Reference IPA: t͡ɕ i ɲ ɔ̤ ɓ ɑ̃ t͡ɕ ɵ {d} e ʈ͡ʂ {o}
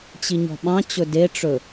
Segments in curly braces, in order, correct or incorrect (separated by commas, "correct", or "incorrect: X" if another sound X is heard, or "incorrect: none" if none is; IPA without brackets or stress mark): correct, incorrect: ɵ